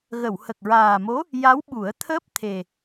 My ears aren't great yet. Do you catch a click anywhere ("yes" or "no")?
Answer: no